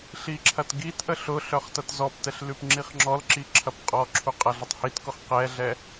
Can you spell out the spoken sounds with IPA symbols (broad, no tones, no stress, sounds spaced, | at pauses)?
ɬ i ǁʰ ɐ t ɡ i t ʔ ə ɬ ʊ ɬ œ χ t ɐ t z ɔ p t ɛ ɬ l ʉ p ŋ͡ǁ i χ ŋ͡ǁ ɔ l ǁ i ǁʰ ɐ p qʼ ɔ ǁʰ u qʼ ɐ ɮ ə tˤ h i t k ʊ χ q ɛ ɮ ɛ